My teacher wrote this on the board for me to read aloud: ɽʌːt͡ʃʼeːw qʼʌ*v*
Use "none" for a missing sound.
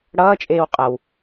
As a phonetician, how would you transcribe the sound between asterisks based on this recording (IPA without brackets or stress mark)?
w